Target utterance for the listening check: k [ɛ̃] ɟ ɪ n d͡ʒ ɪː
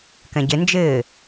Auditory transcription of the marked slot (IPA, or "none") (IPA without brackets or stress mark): ɛ̃